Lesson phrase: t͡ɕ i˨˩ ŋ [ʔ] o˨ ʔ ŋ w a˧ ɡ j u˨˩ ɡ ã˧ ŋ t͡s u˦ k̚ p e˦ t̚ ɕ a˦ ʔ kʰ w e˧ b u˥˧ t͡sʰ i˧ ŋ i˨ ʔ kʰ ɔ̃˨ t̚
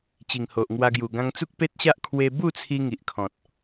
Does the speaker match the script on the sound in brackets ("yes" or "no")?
no